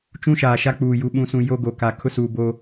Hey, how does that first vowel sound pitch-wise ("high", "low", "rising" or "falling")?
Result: high